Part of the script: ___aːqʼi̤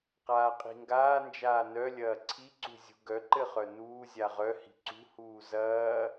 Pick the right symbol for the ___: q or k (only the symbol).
q